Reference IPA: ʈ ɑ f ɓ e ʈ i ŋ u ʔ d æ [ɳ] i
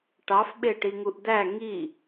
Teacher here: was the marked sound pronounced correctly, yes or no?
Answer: no